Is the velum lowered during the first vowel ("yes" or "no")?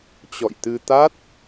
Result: no